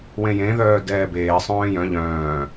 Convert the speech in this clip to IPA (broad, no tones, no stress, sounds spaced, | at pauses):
w ẽ j ẽ ð œː d ɛː b eː sˤ œ̃ː j œ̃ ʎ œ̃ː